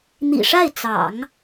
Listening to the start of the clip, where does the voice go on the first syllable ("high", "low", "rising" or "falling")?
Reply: low